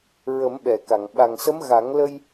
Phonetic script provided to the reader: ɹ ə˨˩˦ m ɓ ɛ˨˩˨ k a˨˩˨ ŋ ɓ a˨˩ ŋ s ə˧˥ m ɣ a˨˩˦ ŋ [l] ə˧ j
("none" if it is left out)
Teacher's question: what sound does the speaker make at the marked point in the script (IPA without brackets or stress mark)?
l